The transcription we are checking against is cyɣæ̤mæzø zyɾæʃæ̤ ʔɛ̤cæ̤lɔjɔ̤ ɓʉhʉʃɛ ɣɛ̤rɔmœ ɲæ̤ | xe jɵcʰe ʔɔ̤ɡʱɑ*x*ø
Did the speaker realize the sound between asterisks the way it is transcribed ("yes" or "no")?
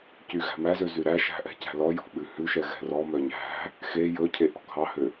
no